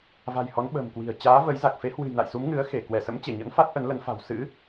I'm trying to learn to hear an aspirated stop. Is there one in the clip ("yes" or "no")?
no